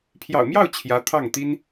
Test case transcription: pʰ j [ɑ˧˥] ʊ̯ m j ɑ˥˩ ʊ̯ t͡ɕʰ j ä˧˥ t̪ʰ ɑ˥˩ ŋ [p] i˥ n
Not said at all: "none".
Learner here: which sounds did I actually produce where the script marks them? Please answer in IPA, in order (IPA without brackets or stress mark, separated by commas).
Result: ɑ̰˨˩, t̪